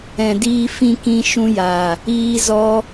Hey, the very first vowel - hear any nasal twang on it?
yes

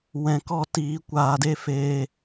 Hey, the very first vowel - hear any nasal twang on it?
yes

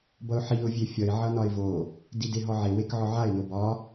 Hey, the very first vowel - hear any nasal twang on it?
no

